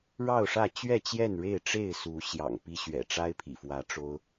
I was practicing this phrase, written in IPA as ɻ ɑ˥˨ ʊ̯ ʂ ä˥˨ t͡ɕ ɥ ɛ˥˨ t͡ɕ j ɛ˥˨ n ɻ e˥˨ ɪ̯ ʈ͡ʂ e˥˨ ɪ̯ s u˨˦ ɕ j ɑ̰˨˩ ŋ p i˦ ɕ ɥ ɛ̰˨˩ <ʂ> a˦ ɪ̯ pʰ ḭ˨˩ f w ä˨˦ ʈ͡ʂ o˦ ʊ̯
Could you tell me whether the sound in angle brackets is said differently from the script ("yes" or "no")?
yes